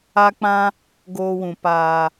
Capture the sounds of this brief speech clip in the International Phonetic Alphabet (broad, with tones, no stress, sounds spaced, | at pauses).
a˧ k͡p ã˧ | ɡ oː˧ w ũ˨ p aː˨